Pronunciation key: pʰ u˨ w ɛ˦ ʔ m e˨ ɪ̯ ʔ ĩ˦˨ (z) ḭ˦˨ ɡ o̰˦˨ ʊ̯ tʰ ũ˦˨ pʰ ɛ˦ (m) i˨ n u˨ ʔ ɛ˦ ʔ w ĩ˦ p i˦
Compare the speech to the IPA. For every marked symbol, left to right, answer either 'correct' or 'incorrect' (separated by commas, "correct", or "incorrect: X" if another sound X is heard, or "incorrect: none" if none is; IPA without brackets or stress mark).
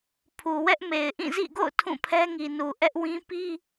correct, incorrect: ŋ